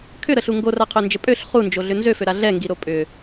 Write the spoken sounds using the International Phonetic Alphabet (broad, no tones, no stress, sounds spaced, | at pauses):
kʰ ʏ ɾ ə ɬ u ŋ ɡ o r a qʰ ø n d͡ʒ ə pʼ ø ɬ χ u n d͡ʒ o ɮ ʏ n z ø f ø ɾ a ɮ ɛ ŋ ɡ i ɾ o pʼ ʏ